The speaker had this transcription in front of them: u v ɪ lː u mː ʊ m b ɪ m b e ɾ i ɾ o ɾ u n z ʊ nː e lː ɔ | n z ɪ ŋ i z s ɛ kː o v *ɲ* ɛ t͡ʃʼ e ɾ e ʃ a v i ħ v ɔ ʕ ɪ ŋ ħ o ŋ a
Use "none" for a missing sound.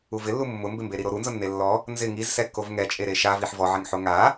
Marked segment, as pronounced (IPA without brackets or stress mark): ŋ